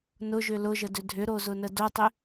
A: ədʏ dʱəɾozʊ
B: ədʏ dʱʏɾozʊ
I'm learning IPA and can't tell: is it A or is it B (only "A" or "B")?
B